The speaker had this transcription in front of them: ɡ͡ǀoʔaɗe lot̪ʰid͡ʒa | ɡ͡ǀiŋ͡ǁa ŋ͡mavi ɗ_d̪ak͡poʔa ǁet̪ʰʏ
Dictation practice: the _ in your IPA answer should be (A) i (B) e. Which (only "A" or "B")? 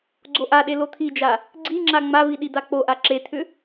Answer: A